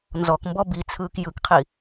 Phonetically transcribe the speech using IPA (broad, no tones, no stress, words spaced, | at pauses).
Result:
nzɔkmbɔ bit͡sʰɯːk jɯkqʰi